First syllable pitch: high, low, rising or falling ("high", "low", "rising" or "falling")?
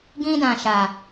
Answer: high